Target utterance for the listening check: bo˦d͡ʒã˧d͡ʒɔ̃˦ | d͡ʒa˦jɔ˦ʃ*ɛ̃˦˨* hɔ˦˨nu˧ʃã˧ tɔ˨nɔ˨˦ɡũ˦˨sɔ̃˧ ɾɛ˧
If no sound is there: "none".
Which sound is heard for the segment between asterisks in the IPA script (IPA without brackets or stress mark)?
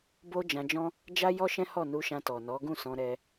ɛ̃˦